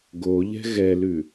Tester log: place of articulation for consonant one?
velar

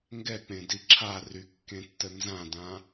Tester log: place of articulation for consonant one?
velar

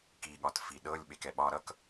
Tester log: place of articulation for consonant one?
velar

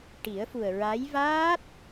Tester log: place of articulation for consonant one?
retroflex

